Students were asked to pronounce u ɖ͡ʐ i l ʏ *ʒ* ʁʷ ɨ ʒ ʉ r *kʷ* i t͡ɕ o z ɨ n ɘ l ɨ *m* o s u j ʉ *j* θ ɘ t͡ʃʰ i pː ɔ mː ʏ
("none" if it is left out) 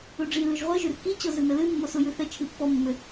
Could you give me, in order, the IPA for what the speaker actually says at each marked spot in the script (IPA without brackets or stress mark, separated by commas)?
ʒ, k, mː, none